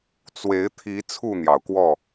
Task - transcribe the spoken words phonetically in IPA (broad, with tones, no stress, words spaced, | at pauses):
t͡swe˨˦ɪ̯t̪ʰi˨˦ t͡sʰu˥˨n̪jɑ˩ʊ̯kwɔ˥˨